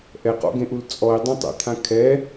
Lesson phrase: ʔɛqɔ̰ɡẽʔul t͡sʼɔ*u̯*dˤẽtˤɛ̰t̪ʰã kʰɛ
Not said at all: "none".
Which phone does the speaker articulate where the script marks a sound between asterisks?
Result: i̯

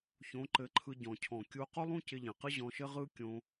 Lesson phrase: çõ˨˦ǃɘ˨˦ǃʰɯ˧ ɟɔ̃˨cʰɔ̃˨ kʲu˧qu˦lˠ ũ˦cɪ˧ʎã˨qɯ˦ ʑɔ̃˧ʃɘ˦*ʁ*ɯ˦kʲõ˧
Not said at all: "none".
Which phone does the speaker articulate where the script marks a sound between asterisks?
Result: ʁ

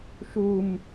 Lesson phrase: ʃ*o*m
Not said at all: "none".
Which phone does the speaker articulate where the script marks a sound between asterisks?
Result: u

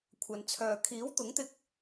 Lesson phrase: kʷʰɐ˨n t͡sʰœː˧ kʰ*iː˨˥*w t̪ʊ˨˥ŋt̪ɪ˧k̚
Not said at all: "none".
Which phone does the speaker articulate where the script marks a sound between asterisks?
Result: iː˨˥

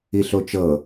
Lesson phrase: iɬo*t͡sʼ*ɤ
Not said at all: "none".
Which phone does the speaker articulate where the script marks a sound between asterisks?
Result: t͡ʃ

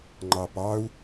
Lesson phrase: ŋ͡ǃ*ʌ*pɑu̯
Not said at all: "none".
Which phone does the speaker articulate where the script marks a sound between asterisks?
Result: ɑ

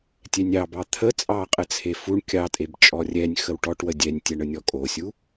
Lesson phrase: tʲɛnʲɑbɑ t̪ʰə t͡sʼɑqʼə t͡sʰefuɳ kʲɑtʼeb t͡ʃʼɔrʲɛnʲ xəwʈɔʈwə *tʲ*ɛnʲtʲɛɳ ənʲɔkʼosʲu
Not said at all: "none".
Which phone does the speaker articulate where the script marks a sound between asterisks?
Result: dʲ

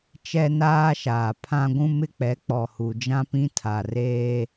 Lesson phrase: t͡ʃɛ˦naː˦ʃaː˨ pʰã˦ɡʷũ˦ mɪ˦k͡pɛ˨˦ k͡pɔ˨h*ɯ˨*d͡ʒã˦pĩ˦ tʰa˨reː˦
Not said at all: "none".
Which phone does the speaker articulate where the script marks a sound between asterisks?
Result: u˨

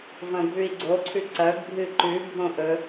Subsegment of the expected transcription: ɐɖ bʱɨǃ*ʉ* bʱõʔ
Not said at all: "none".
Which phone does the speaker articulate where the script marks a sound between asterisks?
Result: ʉ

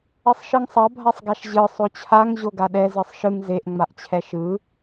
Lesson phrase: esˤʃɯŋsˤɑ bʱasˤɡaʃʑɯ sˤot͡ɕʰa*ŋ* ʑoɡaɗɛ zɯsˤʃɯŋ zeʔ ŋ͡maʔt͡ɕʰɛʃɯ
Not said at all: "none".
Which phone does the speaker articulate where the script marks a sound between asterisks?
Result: ŋ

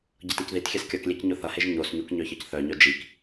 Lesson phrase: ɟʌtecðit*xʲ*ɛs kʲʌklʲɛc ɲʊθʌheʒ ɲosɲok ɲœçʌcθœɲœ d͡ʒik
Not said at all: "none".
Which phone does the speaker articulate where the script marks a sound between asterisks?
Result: xʲ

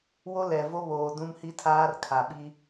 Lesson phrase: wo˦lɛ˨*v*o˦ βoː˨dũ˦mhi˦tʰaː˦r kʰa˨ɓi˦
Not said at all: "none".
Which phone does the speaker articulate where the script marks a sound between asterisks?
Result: v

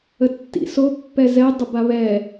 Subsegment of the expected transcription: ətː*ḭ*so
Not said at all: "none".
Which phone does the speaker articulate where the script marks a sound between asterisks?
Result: ḭ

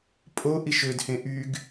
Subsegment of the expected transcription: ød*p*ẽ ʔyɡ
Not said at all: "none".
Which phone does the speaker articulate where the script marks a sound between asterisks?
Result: h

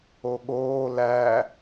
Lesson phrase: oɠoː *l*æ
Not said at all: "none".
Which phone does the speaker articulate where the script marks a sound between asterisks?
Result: l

